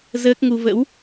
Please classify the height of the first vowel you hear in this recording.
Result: mid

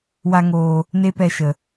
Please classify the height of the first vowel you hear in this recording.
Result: low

